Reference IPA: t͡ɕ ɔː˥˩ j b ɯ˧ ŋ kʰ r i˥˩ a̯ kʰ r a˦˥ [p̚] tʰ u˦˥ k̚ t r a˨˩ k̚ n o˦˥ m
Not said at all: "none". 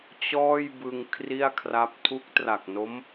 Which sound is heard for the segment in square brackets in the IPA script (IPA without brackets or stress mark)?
p̚